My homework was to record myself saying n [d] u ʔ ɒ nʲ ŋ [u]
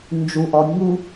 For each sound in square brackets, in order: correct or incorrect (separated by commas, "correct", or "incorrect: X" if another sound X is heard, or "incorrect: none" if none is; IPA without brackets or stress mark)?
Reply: incorrect: d͡ʒ, correct